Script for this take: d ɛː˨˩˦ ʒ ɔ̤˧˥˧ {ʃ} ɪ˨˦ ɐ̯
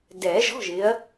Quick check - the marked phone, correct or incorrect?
incorrect